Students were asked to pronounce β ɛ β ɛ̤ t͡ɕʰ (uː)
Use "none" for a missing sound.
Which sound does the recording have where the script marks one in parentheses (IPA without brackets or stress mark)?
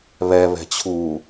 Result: uː